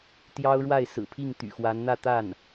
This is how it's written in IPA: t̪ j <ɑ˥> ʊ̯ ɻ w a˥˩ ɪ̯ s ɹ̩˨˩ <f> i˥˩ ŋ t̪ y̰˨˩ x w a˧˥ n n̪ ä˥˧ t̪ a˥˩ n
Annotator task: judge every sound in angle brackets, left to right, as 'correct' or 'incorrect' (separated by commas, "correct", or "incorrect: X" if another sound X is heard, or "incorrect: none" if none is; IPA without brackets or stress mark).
correct, incorrect: pʰ